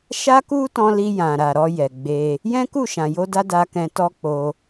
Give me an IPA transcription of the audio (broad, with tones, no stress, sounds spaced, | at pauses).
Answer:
ʃ a˦ k u˦ t ɔ̃˧ l i˧ j ã˨ ɾ a˨ ɾ ɔ˧ j ɛ˨ ɡ͡b e˧ | j ɛ̃˦ k u˦˨ ʃ ã˨ j o˧ d a˦ d a˧ k ɛ̃˧ t ɔ˦ k͡p o˧